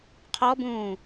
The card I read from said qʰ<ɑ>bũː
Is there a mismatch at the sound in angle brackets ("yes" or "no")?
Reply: yes